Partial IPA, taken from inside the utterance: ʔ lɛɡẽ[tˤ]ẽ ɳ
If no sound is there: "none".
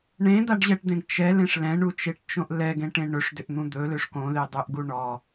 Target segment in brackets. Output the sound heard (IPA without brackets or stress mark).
ʈ